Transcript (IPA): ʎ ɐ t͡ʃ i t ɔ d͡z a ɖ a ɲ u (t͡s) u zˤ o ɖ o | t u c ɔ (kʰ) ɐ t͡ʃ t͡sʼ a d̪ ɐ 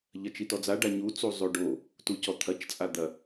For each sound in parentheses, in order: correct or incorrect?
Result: correct, incorrect: t̪ʰ

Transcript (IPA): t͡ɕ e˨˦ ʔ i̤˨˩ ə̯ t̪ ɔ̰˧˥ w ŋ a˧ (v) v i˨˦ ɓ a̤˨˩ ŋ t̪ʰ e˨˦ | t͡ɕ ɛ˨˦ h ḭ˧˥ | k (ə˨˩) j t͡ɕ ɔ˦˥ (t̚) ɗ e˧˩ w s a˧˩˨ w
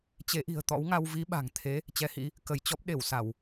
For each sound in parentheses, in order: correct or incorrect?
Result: incorrect: w, incorrect: ə˧˩, incorrect: p̚

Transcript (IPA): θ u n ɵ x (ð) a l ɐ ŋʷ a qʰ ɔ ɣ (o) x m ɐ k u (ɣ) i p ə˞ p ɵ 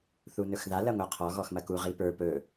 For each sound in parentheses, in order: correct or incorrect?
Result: correct, incorrect: ɔ, incorrect: ʁ

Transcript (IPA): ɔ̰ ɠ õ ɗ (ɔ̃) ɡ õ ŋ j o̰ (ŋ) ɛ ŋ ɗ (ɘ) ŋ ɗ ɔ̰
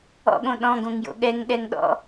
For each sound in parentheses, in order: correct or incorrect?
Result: correct, incorrect: ɠ, incorrect: ɛ

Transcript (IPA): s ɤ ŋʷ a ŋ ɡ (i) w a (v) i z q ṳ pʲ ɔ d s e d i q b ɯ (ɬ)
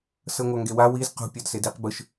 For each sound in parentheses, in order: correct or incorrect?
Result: incorrect: e, incorrect: w, incorrect: ʃ

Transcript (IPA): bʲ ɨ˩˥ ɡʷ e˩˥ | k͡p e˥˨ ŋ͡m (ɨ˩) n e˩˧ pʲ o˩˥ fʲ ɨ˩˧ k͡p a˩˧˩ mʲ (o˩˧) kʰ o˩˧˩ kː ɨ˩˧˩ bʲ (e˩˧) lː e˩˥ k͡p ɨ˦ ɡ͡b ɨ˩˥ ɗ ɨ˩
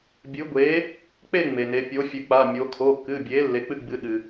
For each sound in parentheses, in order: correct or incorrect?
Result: incorrect: e˩, correct, incorrect: e˩˥

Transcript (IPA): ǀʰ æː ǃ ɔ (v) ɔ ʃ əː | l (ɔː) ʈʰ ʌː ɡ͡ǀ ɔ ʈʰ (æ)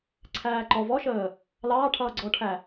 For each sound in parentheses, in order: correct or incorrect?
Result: correct, incorrect: ɑː, correct

